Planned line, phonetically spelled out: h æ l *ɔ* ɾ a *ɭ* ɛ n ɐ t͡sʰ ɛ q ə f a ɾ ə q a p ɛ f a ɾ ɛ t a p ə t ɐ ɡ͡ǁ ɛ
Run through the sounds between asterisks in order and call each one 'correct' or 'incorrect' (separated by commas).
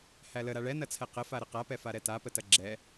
incorrect, correct